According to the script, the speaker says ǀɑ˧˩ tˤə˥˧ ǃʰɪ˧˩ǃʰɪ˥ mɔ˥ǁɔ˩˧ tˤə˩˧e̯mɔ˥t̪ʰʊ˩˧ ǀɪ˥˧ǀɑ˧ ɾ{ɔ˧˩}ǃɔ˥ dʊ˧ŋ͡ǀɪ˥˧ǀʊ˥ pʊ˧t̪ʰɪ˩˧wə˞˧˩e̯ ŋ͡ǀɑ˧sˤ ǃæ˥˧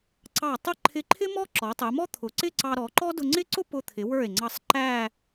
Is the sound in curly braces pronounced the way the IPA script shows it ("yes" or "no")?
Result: no